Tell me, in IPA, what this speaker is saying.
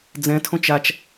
d͡z ɛ̃ tʰ õ t͡ʃ a t͡ʃ

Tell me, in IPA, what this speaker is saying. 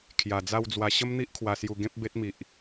kʰ j a˨˩ d͡z a˥˧ w d͡z w a˧ ɕ ə˦ m n̪ i˦ ʔ kʰ w a˨˩ s j u˨˩ ɡ ẽ˦ p̚ b e˦ t̚ m i˨ ʔ

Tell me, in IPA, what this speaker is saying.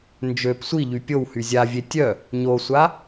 n d͡ʒ ø p sʷ i ʎ y pʲ o w h y zʲ a vʲ e tʲ œ | ɲ o sʷ a

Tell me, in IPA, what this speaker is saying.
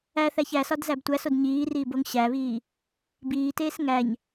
æ θ æ ç æ s ɒ d z æ b tʷ æ s o d ɲ iː r iː b o ŋ ɕ æ β iː | b iː t eː s ŋ æ ɲ

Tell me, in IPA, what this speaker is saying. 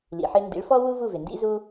l ḭ˩ ħ ɪ˧ n d ḭ˩˥ ɭ f ɔ˥ w u˥ v u˥˩ v ɪ˩ n d ḭ˥ z u˥

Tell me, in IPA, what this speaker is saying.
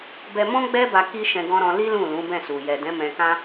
b ɛ˧ m ɔ̃˦ ɡ͡b ɛ˦ b a˧ k i˦ ʃ ɛ̃˧ ɡ ɔ̃˧ ɾ ɔ̃˧ l i˦ l ũ˦˨ l ũ˨˦ b ɛ̃˦˨ s u˨ j ɛ˨ d ɛ̃˨˦ m ɛ̃˧ k ã˦

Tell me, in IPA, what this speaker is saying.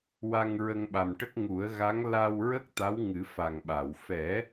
w a˧ ŋ ɹ ə˧ ŋ ɓ a˨˩ m ʈ ə˦˥ k̚ ŋ u˨˩˦ ə̯ ɣ a˧˥ ŋ l a˧ w ɹ ə˦˥ k̚ t̪ a˧˥ w ŋ ɨ˨˩˦ f a˨˩ ŋ ɓ a˨˩˨ w f ɛ˨˩˦

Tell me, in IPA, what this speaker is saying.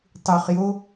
tˤ u χ j o

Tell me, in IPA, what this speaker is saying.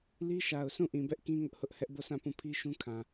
l i˦ ʃ a˨ ʊ̯ sʰ ũ˦˨ ʔ ĩ˨ b ɛ˦ ʔ k ĩ˦ ŋ ʊ˦ ʔ h ʊ˦ ʔ h ɛ˦ ʔ b o˦˨ sʰ ã˦˨ p ũ˦˨ pʰ i˦ ʃ ũ˦ kʰ ã˨

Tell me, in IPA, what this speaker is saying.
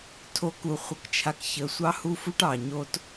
tʰ o˨˦ k u˨ χʷ ə˨ k t͡ʃʰ a˨ k ç ə˨˦ sʷ ɑ˦ h u˦ f u˦ ʈ ɑ˨ ɲ o˦ t

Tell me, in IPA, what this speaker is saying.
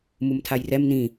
m u m tʰ a j r ɛ m n ĩ

